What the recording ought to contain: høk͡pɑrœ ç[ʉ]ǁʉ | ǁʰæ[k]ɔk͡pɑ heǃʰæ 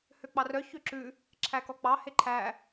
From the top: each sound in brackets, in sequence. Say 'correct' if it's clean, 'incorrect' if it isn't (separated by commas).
incorrect, correct